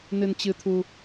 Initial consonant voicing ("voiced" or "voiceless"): voiced